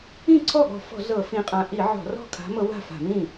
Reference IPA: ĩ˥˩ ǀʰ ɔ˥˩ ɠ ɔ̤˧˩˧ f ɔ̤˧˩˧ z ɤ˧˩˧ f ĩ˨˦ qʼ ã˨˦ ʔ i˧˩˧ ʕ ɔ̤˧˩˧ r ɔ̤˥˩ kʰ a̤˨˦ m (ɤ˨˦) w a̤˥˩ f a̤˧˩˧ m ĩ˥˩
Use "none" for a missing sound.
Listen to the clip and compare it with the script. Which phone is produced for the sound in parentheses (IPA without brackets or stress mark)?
ɤ˨˦